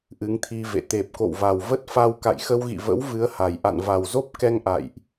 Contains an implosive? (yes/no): no